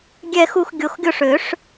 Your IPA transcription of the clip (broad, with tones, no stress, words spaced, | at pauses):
ɡʲɛ˥˧xu˥˧x ɡʲo˧xɡʲo˥˧ʂ ø˨˩˦ʂ